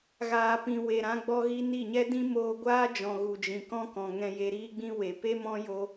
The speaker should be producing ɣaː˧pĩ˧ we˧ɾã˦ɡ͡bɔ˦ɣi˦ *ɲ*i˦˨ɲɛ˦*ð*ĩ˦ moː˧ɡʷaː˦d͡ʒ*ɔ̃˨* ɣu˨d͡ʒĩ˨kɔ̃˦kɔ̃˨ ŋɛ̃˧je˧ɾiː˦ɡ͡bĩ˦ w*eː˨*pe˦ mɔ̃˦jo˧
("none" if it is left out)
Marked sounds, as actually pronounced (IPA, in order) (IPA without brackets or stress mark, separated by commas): n, d, ɔ̃˨, e˨